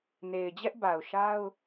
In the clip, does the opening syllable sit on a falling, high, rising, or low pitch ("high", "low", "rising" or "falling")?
low